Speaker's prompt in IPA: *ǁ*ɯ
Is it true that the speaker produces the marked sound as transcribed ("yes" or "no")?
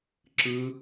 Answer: yes